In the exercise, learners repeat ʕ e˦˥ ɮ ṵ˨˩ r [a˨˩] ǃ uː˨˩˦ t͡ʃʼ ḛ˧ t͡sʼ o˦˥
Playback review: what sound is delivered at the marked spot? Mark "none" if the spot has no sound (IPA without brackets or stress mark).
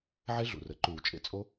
ə˨˩